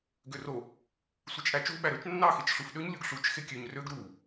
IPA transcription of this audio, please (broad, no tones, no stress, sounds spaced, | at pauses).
ɡ ø r o | sʷ i t͡ʃ ʔ æ t͡ʃ u ɓ æ ɾ ø t͡ʃ nː ɑ x e t͡ʃ ɬ u f ɗ ø ɲ lʲ u ɡ ɬ u t͡ʃ x e kʲ ø ɲ r ø ɡ ɾ u